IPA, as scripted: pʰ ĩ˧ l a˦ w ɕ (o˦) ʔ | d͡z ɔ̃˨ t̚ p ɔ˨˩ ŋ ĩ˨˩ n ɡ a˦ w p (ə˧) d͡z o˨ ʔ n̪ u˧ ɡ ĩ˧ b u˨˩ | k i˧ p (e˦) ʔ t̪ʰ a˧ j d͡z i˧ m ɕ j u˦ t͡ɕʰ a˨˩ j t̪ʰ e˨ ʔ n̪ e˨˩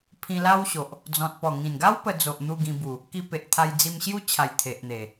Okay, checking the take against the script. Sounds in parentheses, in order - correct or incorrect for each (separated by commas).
incorrect, correct, incorrect